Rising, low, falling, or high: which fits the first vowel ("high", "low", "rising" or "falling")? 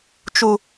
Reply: low